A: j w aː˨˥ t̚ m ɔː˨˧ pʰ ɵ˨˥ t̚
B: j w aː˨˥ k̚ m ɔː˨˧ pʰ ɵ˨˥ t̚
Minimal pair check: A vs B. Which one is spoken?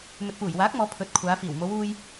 B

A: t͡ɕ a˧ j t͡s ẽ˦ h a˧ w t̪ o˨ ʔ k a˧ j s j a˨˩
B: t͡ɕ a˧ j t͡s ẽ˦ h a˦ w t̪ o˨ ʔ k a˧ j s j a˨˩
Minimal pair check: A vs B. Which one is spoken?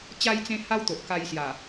B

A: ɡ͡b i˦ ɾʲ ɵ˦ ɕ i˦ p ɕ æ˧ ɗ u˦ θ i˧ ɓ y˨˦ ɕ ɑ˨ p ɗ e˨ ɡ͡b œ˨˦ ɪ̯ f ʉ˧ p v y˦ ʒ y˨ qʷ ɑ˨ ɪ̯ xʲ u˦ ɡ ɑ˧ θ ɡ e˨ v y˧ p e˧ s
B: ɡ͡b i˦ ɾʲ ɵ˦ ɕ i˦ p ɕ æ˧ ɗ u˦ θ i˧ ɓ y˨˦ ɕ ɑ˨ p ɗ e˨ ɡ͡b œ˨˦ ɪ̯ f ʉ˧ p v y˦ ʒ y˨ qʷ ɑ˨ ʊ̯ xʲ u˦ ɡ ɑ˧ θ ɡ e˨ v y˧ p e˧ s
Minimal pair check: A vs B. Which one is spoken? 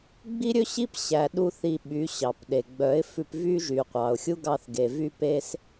B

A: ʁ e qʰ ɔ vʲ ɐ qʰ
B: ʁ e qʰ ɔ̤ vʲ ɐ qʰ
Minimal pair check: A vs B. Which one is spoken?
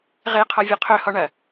A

